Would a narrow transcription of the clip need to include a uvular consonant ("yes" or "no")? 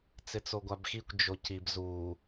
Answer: no